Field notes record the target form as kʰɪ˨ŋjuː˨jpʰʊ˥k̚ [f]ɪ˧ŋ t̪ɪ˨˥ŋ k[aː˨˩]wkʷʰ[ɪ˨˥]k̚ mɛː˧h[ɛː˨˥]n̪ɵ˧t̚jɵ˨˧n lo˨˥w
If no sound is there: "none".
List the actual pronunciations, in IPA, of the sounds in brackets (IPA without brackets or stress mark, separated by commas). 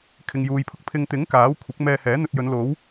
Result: pʰ, aː˨˥, ɪ˨˥, ɛː˨˥